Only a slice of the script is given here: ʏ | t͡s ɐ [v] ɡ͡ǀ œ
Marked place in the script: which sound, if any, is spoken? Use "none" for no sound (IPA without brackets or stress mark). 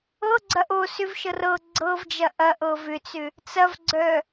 v